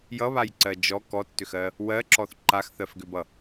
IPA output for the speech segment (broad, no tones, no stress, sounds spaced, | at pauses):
j ʌ β a j ǀ ɜ d͡ʒ ɔ k ɔ tː ʏ x ɜ | w ɜ ǁ ɔ θ ǃ a x θ ɜ f ɡ ʏ b ʌ